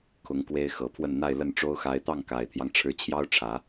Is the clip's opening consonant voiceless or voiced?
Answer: voiceless